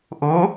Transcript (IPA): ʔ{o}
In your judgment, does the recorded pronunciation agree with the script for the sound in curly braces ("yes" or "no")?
yes